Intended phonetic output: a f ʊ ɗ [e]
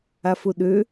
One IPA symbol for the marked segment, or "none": ø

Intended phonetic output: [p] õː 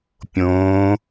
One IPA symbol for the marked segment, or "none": pʲ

